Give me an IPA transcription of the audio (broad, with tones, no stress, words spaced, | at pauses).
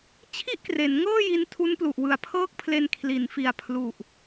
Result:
t͡ɕʰi˥˩ʔkre˩˦n ŋɤː˥˩ji˧n tʰu˦˥nplu˨˩ʔ wɯ˨˩a̯pʰɤː˥˩k̚pʰle˧n kʰli˩˦n fi˨˩a̯ pʰlu˨˩ʔ